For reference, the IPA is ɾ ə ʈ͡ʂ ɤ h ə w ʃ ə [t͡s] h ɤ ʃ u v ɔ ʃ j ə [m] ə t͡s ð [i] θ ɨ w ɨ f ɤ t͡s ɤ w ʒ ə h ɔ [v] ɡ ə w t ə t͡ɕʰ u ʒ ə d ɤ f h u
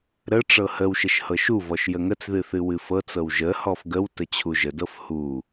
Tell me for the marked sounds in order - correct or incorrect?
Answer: incorrect, incorrect, incorrect, incorrect

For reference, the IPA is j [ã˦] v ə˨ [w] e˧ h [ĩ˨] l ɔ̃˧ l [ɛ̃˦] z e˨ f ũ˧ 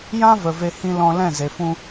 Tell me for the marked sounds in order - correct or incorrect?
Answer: correct, incorrect, incorrect, incorrect

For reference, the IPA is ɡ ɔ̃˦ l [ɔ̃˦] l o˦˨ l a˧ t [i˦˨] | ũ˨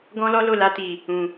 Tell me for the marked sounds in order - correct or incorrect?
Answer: incorrect, incorrect

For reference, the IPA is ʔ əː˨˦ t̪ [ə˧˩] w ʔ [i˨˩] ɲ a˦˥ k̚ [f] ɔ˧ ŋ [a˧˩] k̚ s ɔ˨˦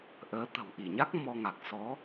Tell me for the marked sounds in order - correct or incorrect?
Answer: incorrect, incorrect, incorrect, incorrect

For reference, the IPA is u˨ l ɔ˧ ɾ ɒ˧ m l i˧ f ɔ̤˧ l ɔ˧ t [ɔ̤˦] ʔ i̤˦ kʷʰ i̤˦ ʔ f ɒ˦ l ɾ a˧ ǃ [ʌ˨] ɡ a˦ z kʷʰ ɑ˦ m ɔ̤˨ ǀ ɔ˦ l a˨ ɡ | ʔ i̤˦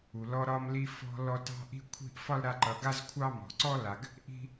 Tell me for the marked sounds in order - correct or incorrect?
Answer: incorrect, correct

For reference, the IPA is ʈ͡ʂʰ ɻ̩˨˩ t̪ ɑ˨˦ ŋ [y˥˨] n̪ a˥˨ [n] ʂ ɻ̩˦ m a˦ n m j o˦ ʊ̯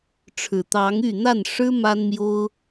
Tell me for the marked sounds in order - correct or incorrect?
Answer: correct, correct

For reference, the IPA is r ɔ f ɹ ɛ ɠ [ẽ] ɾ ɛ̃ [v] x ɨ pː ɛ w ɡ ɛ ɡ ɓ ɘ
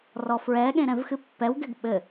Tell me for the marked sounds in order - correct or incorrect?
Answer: correct, correct

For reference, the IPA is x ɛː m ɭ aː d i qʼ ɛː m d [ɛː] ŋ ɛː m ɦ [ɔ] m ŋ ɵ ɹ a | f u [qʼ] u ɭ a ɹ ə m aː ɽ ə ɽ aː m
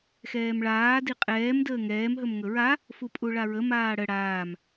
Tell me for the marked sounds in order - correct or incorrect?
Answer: incorrect, incorrect, incorrect

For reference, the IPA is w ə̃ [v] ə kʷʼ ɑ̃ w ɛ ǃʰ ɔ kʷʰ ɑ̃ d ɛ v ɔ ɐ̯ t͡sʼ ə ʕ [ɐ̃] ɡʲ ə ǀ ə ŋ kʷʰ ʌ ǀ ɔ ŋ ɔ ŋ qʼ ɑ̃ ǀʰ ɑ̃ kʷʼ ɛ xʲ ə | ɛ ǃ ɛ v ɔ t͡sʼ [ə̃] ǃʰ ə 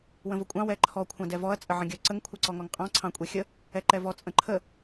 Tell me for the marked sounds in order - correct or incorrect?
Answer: correct, incorrect, correct

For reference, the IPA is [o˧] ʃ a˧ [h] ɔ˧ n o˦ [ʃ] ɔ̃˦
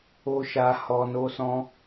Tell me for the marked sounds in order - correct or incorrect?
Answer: correct, correct, incorrect

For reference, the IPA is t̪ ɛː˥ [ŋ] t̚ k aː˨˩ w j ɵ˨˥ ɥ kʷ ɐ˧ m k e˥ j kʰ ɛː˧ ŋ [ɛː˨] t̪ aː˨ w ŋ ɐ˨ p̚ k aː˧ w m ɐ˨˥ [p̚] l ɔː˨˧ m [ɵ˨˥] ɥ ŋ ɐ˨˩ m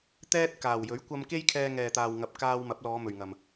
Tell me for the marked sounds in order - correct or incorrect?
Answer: incorrect, correct, correct, incorrect

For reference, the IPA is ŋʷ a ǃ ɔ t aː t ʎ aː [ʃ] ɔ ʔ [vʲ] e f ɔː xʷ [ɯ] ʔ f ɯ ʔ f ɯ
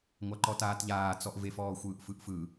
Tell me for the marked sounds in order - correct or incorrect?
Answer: incorrect, incorrect, incorrect

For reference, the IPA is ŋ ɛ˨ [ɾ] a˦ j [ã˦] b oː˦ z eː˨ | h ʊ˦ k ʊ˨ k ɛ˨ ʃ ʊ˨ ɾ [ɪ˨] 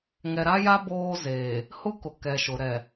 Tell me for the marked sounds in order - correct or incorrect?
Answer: correct, incorrect, incorrect

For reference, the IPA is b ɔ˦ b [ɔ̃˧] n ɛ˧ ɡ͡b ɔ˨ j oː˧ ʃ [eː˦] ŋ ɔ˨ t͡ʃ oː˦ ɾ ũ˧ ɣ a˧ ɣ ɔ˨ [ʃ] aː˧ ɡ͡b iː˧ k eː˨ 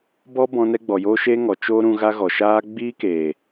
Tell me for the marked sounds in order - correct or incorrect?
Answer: correct, incorrect, correct

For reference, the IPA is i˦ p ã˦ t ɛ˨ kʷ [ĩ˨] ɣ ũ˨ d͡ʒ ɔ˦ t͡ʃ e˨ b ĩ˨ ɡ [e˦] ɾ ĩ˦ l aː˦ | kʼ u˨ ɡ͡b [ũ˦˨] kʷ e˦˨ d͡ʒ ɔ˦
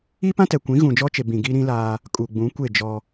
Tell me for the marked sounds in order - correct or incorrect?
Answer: incorrect, incorrect, incorrect

